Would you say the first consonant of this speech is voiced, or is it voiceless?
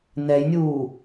voiced